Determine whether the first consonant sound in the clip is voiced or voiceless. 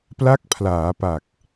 voiceless